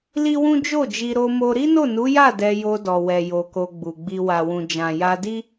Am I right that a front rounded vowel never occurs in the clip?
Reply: yes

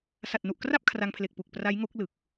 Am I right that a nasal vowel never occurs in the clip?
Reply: yes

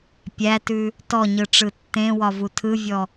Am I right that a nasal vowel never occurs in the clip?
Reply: no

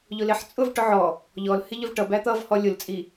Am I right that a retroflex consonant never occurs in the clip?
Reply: no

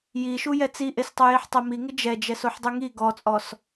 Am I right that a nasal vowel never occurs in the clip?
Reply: yes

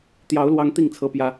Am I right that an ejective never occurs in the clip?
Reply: yes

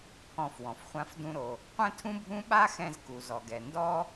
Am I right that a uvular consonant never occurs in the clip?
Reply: no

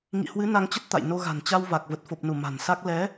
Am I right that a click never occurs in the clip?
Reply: yes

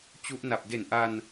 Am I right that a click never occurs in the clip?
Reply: yes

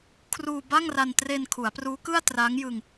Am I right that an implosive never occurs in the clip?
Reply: yes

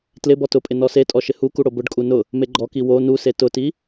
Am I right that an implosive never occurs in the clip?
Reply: yes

